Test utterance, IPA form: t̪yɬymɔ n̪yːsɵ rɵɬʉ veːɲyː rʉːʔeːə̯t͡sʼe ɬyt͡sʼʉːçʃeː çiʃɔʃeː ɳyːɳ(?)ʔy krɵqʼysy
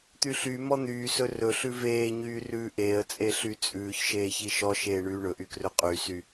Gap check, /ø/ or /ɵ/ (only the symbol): ɵ